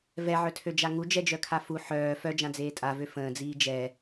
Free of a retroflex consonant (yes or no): yes